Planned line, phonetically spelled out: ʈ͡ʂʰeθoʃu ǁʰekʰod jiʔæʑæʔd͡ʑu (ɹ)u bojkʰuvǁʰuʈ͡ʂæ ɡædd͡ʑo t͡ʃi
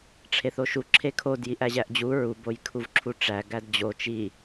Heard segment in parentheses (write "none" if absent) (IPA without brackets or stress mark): ɹ